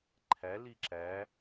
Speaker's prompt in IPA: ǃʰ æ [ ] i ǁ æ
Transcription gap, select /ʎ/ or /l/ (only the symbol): l